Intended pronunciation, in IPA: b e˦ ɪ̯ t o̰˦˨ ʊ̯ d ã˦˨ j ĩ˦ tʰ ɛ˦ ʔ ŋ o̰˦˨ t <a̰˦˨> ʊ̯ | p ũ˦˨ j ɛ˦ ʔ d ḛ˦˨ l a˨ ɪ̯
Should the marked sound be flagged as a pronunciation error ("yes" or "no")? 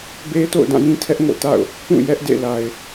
no